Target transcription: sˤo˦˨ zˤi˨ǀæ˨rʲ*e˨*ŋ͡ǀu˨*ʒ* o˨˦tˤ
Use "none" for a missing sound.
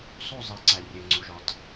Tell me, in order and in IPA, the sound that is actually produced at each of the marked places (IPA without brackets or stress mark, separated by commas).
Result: e˨, ʒ